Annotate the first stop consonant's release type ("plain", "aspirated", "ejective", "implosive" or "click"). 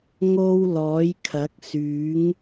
aspirated